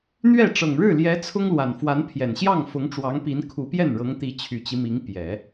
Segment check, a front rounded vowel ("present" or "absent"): present